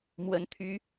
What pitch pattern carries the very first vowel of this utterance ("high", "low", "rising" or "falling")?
rising